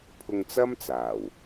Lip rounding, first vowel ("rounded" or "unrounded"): rounded